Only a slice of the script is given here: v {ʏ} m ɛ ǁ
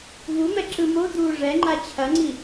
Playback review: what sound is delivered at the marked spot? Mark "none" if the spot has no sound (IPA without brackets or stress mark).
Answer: u